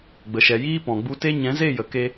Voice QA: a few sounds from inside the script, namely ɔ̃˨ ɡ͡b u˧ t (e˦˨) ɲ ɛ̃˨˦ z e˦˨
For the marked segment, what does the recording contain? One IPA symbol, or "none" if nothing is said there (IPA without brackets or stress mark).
e˦